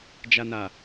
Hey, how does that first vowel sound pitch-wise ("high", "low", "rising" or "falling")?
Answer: low